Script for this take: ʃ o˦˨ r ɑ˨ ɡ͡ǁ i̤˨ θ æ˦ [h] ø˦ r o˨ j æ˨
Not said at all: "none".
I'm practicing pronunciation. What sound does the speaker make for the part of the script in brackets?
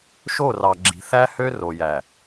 h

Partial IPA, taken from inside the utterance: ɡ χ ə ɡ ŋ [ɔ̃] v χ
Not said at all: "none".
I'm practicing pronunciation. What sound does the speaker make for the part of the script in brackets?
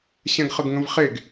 ə̃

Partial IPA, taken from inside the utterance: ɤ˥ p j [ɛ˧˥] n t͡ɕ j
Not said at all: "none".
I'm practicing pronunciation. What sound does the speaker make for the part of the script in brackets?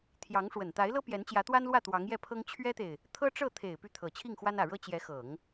ɛ˧˥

